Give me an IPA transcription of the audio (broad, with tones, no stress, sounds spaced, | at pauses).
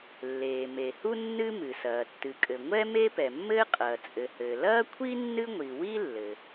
lː eː˩ m e˩ h u˥ nː ɨ˥ m ɨ˩ s ɐː˩ tː ɨ˩ kʼ ɘ˩ ŋʷ ɛ˥ m e˥ p ɛ˩ mː ɘː˥ qʼ ɐː˩ t͡sʼ ɘ˩ h ɘː˩ l ɐː˥ kʷʰ i˥ nː ɨ˥ ŋʷ i˩ w i˥ lː ɘ˩